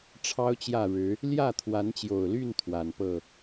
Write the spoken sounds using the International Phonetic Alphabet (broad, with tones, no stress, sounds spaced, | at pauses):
ʈ͡ʂʰ ɑ˦ ʊ̯ t͡ɕ j ä˥˨ ɻ ɻ̩˨˦ | l j ä˥˨ t̪ʰ w a˨˦ n t͡ɕ j o˨˩ ʊ̯ l y˥˨ n t̪ʰ w a˨˩ n p ɤ˥˨